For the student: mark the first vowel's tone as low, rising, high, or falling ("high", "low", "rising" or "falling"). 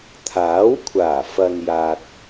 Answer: rising